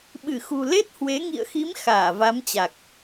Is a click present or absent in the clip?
absent